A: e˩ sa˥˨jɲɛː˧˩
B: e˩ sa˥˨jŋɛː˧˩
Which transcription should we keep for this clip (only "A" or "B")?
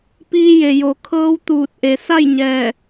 A